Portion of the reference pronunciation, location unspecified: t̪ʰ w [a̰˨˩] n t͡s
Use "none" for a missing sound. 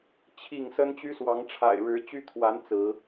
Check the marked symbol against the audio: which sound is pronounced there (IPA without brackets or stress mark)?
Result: a˨˦